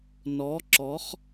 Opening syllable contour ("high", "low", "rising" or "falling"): rising